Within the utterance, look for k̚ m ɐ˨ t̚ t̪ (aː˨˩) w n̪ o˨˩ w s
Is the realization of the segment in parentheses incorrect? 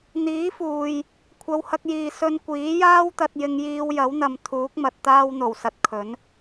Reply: yes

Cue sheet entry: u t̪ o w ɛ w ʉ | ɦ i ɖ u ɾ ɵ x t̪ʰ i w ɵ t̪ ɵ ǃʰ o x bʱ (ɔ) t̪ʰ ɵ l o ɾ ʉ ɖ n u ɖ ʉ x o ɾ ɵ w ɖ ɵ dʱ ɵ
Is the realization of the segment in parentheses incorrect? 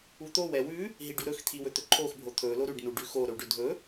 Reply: yes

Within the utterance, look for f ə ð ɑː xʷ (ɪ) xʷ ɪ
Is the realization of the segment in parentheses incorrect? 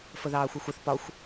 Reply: yes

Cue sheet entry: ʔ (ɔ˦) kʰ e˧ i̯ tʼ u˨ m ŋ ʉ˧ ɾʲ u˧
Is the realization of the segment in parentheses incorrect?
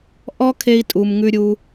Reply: no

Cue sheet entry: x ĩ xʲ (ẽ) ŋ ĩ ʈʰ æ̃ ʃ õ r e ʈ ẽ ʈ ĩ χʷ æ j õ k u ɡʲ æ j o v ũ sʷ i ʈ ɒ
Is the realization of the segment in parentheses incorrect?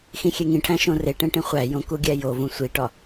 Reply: yes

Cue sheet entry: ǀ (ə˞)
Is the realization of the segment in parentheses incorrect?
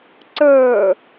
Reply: no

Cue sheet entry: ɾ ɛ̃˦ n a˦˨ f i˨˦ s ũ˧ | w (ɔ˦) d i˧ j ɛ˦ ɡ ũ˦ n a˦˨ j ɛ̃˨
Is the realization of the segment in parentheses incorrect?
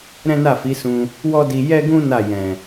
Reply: no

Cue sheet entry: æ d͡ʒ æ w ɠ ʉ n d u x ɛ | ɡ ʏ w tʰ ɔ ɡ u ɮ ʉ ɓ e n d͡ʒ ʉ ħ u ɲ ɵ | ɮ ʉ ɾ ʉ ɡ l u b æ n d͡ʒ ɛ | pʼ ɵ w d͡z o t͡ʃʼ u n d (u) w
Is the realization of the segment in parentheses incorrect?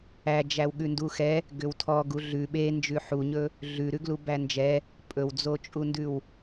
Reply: yes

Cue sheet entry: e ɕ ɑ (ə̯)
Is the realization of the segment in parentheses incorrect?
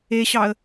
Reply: no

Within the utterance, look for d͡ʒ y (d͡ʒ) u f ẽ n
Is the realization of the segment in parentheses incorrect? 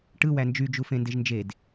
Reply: no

